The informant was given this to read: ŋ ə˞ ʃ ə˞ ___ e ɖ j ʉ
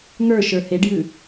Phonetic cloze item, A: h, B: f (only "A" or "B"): A